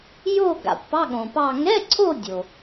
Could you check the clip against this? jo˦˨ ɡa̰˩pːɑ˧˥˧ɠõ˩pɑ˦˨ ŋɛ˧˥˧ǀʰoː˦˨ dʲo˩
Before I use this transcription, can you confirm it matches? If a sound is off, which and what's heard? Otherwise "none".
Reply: oː˦˨ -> o˦˨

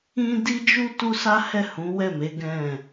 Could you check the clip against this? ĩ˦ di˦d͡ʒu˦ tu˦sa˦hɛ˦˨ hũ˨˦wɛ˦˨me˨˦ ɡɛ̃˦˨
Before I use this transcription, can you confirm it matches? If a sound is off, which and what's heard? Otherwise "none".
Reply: none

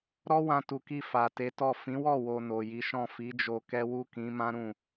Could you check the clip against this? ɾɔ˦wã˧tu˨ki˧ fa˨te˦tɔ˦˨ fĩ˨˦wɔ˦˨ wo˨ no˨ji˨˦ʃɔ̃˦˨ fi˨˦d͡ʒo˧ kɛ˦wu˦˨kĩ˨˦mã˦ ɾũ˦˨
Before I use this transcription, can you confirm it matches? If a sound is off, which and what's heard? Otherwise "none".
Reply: e˦ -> e˨˦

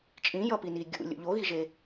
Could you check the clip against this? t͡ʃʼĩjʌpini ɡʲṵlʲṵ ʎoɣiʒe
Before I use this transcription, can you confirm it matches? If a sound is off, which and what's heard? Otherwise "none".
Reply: none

